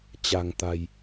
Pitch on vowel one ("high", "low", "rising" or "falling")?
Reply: low